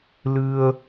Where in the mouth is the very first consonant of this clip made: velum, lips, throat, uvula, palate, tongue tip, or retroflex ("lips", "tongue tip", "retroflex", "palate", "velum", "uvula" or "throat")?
tongue tip